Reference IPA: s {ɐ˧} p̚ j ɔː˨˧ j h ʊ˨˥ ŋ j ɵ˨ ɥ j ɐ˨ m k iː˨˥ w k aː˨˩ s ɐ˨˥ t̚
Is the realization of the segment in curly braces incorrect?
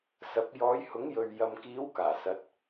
yes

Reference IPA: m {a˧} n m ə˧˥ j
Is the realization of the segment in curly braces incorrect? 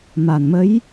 yes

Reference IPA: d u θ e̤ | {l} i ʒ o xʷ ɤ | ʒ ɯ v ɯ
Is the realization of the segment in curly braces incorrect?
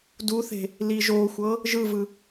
no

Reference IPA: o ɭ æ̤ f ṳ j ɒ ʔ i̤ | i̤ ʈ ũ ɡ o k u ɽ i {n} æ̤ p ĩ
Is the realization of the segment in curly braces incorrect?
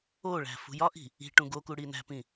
no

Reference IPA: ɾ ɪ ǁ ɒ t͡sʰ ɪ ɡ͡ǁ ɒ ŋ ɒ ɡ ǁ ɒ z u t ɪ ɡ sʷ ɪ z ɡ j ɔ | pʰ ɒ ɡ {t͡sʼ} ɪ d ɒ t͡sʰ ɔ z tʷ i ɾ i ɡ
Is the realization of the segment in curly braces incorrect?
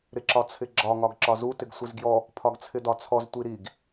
yes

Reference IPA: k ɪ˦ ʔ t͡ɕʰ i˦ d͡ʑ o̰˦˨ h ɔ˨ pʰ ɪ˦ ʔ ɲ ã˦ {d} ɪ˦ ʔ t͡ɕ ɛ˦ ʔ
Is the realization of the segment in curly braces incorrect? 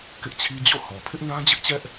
yes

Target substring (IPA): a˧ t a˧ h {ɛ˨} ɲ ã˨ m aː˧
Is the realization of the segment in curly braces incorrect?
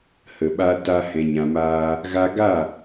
yes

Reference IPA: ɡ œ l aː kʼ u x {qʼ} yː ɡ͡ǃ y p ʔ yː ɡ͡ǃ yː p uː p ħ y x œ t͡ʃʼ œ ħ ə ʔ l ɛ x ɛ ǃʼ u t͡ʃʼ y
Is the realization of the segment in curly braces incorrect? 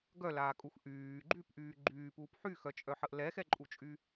yes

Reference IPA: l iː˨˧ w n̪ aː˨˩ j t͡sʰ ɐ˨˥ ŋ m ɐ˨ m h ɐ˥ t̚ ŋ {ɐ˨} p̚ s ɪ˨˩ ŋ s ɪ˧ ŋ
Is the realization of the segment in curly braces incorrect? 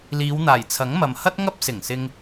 yes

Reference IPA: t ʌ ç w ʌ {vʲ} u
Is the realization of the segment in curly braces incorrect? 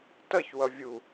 no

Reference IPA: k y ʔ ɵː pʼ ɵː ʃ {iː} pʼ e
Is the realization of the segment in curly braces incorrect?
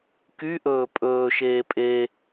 yes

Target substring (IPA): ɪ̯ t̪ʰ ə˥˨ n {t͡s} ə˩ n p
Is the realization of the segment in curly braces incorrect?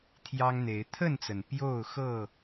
no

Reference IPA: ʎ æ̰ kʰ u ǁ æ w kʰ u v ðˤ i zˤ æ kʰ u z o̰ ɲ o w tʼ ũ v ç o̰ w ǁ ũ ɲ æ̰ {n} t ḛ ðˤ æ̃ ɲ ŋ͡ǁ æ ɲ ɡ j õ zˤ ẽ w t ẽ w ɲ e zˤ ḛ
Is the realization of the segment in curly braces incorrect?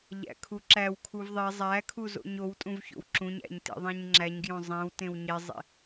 yes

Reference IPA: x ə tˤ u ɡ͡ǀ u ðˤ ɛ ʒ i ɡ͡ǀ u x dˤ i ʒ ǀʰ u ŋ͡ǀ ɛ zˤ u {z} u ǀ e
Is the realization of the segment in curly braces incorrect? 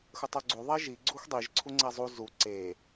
no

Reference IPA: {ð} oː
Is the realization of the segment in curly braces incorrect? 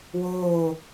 yes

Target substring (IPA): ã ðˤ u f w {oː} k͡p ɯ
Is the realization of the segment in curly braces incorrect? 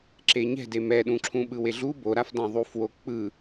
yes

